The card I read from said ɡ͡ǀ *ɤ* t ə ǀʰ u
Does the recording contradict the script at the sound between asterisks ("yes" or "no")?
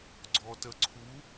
yes